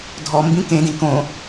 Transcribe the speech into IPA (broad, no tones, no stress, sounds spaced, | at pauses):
dʱ ɔ m b ĩ k ẽ d ĩ k õ